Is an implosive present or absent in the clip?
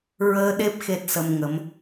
present